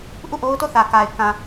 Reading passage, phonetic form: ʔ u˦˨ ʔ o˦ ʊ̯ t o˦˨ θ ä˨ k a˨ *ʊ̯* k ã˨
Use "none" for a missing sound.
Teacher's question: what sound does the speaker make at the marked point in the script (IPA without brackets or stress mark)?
ɪ̯